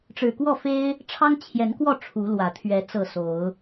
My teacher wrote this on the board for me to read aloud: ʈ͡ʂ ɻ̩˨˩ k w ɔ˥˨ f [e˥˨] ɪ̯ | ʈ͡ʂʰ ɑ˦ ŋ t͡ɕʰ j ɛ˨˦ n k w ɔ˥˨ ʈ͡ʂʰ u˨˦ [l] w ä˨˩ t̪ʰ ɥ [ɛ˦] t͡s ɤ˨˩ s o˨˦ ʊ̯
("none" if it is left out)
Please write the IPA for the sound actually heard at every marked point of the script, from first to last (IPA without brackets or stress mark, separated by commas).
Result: e˦, l, ɛ˨˦